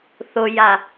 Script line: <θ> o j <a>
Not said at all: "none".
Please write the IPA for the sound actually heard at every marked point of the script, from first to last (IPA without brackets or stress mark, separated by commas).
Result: θ, a